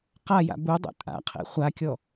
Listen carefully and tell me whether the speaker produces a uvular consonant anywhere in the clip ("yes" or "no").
yes